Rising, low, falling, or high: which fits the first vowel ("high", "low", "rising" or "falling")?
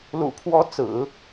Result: low